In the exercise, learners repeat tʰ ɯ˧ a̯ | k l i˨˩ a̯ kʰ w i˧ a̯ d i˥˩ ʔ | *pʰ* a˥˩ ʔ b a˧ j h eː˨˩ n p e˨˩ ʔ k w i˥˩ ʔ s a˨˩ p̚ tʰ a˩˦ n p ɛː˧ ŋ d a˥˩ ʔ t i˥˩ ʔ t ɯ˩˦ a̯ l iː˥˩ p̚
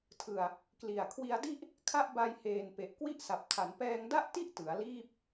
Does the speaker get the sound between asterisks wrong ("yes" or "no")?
yes